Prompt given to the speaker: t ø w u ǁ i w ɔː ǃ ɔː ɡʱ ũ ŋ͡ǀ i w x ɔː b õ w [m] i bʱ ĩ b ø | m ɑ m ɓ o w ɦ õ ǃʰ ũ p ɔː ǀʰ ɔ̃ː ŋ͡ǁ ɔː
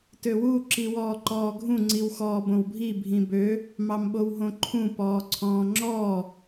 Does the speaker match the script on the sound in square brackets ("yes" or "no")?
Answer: no